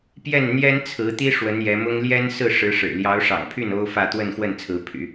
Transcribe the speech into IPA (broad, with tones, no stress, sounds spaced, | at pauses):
p j ɛ˥˩ n n̪ j ɛ˥ n t͡sʰ ɹ̩˧˥ t̪ i˥ ʂ w ə˧˥ n j ɛ˧˥ m ʊ˥ ŋ l j ɛ˥ n s ɹ̩˥˩ ʂ ɻ̩˧˥ ʂ ɻ̩˨˩ l j ɑ˧˥ ʊ̯ ʂ ɑ̰˨˩ ŋ pʰ y˥˩ n o˥ ʊ̯ f ä˥˧ t̪ w ə˥˧ n x w ə˥˩ n t͡sʰ ɹ̩˧˥ pʰ y̰˨˩˦